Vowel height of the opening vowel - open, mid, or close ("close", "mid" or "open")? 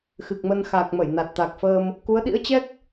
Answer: close